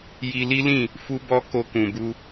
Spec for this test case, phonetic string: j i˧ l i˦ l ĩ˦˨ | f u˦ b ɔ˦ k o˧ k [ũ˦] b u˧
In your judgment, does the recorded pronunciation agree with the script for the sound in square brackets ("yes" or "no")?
no